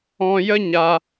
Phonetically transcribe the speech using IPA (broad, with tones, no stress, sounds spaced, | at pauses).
ɔ̃˦ j ə˦ ɲ a˧